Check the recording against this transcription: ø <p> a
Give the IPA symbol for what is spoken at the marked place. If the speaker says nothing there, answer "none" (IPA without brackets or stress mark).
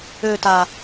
t